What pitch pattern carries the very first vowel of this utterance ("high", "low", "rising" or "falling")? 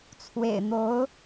low